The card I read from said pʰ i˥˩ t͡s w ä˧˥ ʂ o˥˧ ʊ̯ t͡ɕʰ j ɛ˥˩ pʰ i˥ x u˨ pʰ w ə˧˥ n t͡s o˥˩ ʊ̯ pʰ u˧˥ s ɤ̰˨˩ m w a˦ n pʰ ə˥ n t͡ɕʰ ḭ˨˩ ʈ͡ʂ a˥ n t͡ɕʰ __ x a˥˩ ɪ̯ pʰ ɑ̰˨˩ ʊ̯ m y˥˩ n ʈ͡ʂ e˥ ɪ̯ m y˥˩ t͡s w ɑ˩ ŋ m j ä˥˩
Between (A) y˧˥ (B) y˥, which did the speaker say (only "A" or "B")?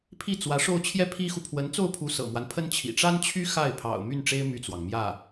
B